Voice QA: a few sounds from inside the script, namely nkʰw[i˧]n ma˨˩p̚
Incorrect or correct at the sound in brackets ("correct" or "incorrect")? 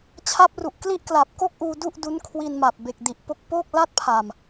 correct